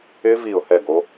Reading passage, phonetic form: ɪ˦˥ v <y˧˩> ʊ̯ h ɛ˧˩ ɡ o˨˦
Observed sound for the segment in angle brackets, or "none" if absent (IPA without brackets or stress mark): i˧˩